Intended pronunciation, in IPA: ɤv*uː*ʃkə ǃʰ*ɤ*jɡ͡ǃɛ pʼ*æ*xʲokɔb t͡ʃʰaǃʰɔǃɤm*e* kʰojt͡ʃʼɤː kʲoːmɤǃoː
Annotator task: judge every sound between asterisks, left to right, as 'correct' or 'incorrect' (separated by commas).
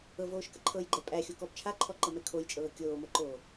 incorrect, correct, correct, incorrect